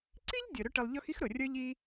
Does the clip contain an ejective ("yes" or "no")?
no